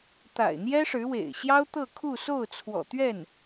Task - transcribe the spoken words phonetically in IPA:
t̪ a̰˨˩ ɪ̯ n̪ j ɛ˥ ʂ ɻ̩˧˥ w ḛ˨˩ ɪ̯ ɕ j ɑ˥ ʊ̯ t̪ ɤ˥˧ kʰ u˥˧ s o˥˩ ʊ̯ t͡sʰ w ɔ̰˨˩ t̪ ɥ ɛ˥˩ n

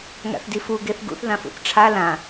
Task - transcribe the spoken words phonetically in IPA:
ŋ a̰ θ d i f u ɡ e θ ɡ ṵ θ ð ã f ṵ θ ʈ͡ʂʰ a l ã

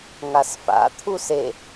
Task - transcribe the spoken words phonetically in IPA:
ŋ a s f a̰ t̪ʰ u s e

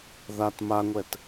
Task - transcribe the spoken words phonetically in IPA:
ð a t m a ŋʷ ɛ t

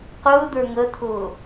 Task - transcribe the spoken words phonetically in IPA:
q ʊː d̪ ə˞ ŋ ə t̪ʰ ʊː

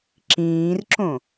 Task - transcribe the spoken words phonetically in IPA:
ǁ ĩː r ǁ õ

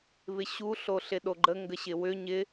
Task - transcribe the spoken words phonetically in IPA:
β ɪ ɕ u ɬ o ɬ ɪ ɗ o ɡ͡ǃ ə ŋ ɡ ə ɕ ɪ w ʏ ɲ ɪ

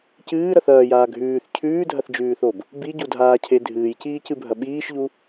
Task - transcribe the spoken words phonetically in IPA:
c ɨː ɾ ɐ θ ɐː j aː ɡʱ ʉː θ cʰ ʉː dʱ ɐ θ d͡ʒ ʉː θ o b | b i ɟ u dʱ aː cʰ e dʱ ɨː j c iː c ɨ bʱ ɐ ɓ iː ʃ ʎ u

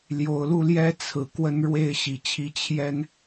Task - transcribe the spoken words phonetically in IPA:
l j o˨˩ ʊ̯ l u˥˨ l j ɛ˦ t͡sʰ ɹ̩˨˩ k w ə˦ n ɻ w e˥˨ ɪ̯ ɕ i˨˩ t͡ɕʰ i˦ t͡ɕʰ j ɛ˦ n

